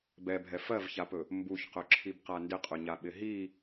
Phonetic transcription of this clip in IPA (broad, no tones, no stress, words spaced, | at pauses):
bɛbʱɛ fɜvçapɵ | mbuçqɵǁʰibqa ndɪqʼɵɲaɓɪ ɦi